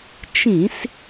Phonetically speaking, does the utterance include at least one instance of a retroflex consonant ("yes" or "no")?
no